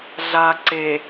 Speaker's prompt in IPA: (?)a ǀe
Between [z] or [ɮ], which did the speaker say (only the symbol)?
ɮ